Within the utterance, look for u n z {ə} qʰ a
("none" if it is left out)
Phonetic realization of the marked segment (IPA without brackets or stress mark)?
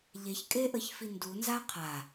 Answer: a